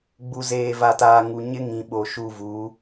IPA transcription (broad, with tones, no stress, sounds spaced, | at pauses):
ɡ͡b u˨ z eː˨ v a˨ t aː˨ ŋ u˨ ɲ ɪ˦ ŋ ĩ˨ ɓ o˨ ʃ u˦˨ v u˨˦